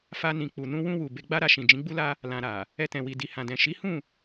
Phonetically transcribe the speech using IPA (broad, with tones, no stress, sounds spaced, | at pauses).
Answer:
f a˧ n ĩ˨ k͡p u˨ n ũ˧ w ũ˧ w u˨ b e˧ ɡ͡b a˦ ɾ a˧ ʃ ĩ˨ d͡ʒ ĩ˨˦ ɡ͡b u˦ l a˦ | l ã˧ ɾ a˨ | ɛ˧ t ɛ̃˨ w i˨ d i˨ h ã˨ d ɛ̃˨ ʃ i˨˦ h ũ˦˨